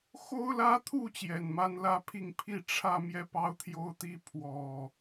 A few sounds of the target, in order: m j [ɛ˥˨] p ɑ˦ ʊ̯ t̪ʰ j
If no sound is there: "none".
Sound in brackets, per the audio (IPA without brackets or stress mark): ɛ˥˨